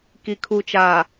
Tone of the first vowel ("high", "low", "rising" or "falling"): low